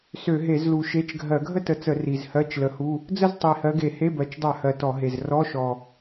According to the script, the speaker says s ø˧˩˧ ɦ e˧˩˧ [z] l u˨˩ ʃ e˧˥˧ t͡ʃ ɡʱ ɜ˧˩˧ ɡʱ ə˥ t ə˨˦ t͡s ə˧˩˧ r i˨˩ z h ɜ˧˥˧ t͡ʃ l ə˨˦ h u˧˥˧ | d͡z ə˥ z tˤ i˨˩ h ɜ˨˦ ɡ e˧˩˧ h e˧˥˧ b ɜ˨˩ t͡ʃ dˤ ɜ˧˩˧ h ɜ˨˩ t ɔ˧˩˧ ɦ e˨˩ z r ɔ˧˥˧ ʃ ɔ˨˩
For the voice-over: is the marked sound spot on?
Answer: yes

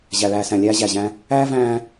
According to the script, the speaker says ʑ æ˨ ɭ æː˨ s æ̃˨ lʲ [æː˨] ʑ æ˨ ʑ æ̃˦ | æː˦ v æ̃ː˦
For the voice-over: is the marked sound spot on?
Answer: no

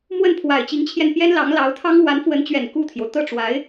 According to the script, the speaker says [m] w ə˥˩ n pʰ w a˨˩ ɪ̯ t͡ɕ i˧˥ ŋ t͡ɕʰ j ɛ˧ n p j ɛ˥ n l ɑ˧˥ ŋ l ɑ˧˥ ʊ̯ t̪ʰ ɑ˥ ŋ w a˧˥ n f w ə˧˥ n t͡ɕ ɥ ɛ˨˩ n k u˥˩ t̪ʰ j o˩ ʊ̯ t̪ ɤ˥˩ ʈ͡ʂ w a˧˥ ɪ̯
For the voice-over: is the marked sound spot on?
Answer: yes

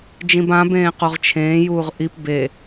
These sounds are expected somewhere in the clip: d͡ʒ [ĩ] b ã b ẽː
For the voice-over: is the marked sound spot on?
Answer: yes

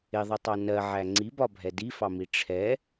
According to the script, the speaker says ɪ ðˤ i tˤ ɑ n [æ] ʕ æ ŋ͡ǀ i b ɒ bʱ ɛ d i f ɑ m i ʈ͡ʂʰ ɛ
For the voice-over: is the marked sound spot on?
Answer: no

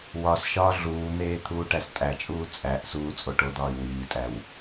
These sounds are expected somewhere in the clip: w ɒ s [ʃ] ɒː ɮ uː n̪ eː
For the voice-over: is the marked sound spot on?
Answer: yes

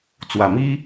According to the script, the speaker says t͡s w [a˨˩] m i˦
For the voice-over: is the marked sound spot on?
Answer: yes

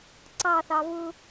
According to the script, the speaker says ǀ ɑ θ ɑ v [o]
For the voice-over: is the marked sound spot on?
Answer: no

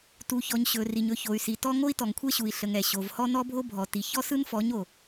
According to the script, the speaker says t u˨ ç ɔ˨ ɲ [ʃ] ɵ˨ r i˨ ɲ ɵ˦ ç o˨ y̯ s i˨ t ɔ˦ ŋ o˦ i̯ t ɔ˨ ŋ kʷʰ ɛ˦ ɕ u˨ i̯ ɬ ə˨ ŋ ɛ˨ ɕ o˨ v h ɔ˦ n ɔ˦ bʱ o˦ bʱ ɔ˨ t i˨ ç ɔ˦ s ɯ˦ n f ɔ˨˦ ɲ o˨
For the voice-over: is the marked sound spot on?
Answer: no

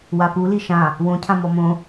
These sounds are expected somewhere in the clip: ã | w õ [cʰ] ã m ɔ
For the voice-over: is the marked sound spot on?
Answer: yes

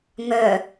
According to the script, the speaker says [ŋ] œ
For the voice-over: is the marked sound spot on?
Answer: yes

